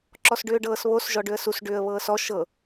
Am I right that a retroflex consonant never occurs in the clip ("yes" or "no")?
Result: no